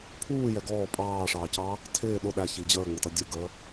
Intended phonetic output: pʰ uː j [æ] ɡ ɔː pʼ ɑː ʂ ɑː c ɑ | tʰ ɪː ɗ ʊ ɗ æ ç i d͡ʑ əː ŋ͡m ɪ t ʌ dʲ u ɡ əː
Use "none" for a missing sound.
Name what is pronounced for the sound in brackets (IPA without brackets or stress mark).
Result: ɛ